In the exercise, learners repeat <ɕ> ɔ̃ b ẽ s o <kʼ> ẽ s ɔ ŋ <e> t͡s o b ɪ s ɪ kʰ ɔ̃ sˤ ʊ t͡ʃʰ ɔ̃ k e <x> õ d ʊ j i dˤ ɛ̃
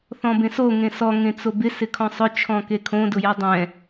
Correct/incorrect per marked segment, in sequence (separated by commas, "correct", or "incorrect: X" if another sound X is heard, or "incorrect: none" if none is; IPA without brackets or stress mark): incorrect: θ, incorrect: ŋ, incorrect: ẽ, incorrect: kʰ